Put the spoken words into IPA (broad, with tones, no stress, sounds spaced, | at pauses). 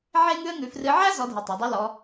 ʕ e˥ ŋ ʉ˥ ə̯ ŋ ʉ˧ f r ɨ˧˥ ʕ æ˥ z ɔ˧˥ dʱ e˧ tˤ æ˩˧ dˤ ʉ˧˥ l ɔ˧˥